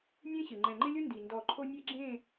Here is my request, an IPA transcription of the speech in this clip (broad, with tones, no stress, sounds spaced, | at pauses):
nʲ ẽ˦ ɕ ɪ˨ ŋ͡ǃ ɛ̃˨ ŋ͡ǃ ɪ˦ lʲ ʊ˦ n d i˨ n d ɔ˦˨ ǃʰ o˦ nʲ e˦ ɡ͡ǁ ẽ˦˨